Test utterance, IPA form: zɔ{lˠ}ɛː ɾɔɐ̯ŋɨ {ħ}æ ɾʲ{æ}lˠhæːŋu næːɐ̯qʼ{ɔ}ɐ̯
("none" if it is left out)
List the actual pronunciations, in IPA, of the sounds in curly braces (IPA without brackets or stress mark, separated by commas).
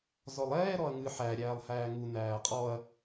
lˠ, ħ, æː, ɔ